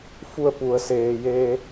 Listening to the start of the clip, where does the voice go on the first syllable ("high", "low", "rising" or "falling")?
falling